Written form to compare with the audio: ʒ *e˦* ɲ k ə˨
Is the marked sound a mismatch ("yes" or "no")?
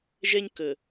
yes